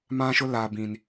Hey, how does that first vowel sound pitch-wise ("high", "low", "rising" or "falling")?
high